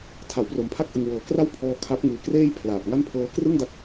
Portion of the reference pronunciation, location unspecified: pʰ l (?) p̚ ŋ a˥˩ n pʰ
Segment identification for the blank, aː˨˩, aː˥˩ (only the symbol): aː˨˩